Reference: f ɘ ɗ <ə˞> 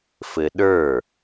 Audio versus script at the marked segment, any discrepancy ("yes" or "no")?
no